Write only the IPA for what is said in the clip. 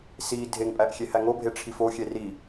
s i dʱ e ŋ pʼ æ ʔ xʲ e h æ ŋ o bʱ e ʈ͡ʂʰ i f o xʲ e r i

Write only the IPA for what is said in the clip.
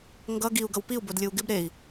ŋ ɡ ʌ ɡ i u̯ ɡ ʌ w p i u̯ b o d lʲ ɯ u̯ ɡ ɪ b ɾ e i̯

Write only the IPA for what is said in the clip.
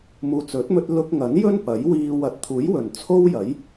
m uː˨ t͡s ɵ˨˥ t̚ m ɵ˧ t̚ l ʊ˧ k̚ ŋ ɐ˨˥ n j ɵ˥ n p ɐ˨˥ j w iː˧ w ɐ˨ t̚ t̪ʰ uː˨˥ j w ɵ˨˩ n t͡sʰ o˥ w j ɐ˨˥ j

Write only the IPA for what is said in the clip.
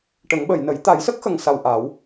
ʈ ə˨˩˦ ŋ ɓ ə˨˩˨ j n ə˨˩˦ j t̪ a˨˩˦ j s ə˦˥ k̚ x ə˨˩ ŋ s a˨˩ w ʔ a˨˩˦ w

